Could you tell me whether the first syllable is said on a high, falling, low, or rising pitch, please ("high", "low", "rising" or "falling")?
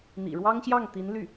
low